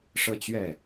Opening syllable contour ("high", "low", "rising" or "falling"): falling